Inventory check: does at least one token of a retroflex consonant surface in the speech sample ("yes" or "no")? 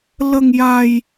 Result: no